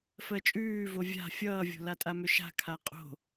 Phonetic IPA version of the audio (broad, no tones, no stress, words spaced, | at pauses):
fɜt͡ʃʼʉːvo vʲa̤ fʲʌːvʲo̤latʼa mʏʃa̤kʰa qʼo̤